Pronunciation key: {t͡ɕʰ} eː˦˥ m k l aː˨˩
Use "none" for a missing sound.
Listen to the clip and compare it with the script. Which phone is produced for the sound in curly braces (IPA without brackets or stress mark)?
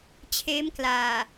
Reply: t͡ɕʰ